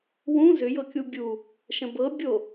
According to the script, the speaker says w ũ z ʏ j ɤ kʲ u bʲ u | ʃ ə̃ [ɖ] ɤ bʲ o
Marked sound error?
yes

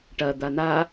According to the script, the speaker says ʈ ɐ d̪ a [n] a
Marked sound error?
no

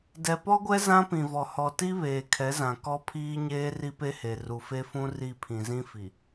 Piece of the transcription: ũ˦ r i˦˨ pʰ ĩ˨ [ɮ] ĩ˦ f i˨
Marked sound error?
yes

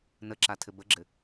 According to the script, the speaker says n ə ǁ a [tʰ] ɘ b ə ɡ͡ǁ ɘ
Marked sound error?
no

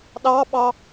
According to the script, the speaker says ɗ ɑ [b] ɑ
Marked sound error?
yes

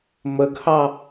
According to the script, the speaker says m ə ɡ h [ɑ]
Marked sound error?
no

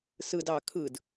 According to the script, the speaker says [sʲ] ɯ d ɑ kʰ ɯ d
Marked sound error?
yes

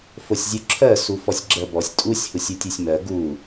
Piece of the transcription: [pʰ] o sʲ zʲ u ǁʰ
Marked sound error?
yes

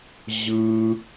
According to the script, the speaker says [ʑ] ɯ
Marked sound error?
no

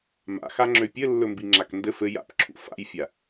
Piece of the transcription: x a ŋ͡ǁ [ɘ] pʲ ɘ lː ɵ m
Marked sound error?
yes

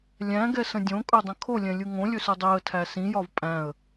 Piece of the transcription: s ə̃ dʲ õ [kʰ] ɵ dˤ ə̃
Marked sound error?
yes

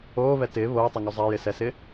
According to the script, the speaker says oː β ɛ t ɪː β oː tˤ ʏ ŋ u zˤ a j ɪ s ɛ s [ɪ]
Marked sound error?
no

